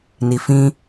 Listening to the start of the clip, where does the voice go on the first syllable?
low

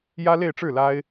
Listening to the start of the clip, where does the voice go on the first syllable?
high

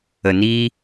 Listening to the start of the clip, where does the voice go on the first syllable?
low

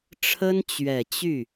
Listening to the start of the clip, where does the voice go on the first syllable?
high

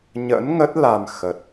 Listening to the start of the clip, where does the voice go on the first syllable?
rising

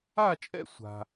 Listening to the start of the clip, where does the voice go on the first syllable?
falling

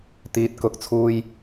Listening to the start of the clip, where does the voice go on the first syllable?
low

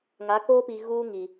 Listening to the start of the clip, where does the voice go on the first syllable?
rising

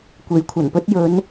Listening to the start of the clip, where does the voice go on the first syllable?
rising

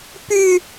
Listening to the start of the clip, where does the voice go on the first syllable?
high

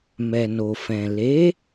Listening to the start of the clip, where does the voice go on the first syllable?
low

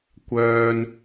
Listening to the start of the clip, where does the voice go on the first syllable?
high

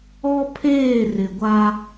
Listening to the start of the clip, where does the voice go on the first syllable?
high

